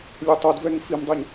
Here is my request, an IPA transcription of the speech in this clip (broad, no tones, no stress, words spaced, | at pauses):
lʲɛtˤod vɛŋfimdˤɛɲ